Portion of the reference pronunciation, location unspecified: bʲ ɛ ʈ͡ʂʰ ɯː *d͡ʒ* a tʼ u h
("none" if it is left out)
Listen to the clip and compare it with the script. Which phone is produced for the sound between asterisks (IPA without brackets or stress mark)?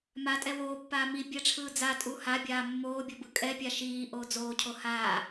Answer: d͡z